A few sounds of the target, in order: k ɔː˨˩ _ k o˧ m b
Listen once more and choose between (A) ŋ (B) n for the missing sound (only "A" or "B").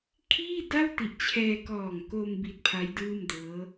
A